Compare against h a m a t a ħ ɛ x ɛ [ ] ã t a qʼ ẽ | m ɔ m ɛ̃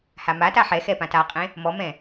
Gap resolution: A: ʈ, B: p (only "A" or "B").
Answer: B